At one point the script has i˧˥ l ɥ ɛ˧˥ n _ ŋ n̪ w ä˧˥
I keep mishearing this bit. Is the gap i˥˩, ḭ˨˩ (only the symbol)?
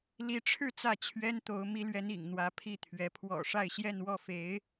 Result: ḭ˨˩